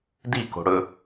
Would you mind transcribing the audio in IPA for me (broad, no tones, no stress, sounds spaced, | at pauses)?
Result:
d i k o̤ ɽ ɵ